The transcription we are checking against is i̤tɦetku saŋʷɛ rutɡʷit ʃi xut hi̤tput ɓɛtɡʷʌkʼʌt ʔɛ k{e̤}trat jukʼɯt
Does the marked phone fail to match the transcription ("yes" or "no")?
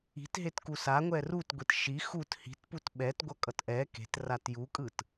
no